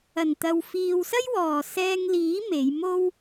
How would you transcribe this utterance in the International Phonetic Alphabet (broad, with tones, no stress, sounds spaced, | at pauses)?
ɐ˨˩ n t̪ ɐ˨ w f iː˨ w s ɐ˥ j w ɔː˨˩ s ɛː˧ ŋ l iː˨˥ m e˨˧ j m o˥ w